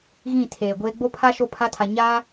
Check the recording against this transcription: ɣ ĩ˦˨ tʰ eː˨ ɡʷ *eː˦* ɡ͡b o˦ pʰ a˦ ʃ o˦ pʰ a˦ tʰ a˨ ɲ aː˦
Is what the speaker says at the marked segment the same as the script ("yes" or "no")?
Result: yes